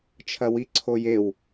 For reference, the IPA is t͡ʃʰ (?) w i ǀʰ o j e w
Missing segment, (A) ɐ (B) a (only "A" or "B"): A